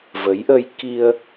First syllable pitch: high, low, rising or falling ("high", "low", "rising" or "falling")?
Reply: rising